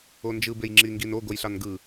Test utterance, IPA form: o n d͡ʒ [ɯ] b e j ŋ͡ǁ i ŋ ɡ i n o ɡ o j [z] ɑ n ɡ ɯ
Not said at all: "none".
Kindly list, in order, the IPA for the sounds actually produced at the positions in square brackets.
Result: ɯ, ɬ

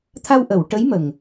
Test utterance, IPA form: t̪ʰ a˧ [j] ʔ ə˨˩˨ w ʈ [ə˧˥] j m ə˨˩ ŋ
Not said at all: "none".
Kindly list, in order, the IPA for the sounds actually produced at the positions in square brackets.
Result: w, ə˧˥

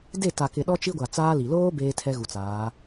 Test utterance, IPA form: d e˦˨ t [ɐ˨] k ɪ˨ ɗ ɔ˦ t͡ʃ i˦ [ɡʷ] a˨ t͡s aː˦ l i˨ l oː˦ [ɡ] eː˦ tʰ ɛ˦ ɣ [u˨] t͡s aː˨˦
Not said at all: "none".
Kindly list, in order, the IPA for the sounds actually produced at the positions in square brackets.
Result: a˨, ɡʷ, b, u˨

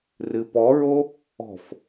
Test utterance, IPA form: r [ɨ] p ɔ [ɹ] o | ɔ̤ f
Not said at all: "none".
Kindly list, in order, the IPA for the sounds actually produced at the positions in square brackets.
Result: ɨ, ɹ

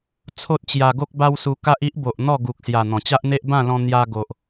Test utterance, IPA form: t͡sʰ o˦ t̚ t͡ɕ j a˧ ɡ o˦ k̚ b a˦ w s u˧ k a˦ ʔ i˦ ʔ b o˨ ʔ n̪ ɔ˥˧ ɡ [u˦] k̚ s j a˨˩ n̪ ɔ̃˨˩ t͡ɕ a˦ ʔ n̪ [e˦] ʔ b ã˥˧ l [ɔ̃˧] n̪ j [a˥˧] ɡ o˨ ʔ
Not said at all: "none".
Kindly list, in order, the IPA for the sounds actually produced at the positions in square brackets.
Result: u˨, e˦, ɔ̃˧, a˧

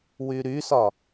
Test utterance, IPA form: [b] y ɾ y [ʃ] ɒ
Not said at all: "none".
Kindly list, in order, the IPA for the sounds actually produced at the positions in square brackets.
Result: w, s

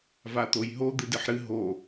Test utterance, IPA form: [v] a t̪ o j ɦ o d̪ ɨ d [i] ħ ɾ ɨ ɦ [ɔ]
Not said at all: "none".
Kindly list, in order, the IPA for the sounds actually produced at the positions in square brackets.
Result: v, ɨ, o

